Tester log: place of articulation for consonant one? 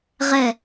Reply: uvular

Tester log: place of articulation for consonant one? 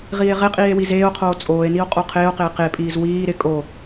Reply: uvular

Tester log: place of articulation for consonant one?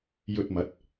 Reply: palatal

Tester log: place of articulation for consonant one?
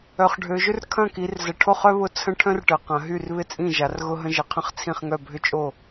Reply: uvular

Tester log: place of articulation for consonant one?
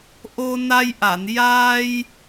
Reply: glottal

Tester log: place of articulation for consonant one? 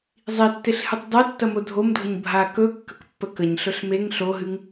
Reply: alveolar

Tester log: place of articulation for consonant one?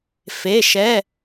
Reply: labial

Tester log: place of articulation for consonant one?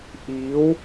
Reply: glottal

